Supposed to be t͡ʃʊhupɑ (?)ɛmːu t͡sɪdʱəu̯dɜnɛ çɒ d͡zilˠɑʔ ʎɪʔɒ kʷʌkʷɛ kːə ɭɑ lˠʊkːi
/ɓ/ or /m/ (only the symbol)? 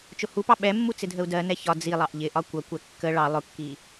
ɓ